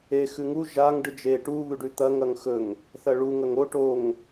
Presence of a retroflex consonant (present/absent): present